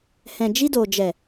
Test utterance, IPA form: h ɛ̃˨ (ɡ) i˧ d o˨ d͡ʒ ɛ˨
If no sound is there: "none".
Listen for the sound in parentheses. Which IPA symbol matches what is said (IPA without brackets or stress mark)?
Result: d͡ʒ